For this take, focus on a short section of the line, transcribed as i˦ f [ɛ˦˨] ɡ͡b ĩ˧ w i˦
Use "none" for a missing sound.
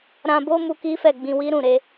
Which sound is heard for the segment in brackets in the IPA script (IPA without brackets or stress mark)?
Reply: ɛ˦˨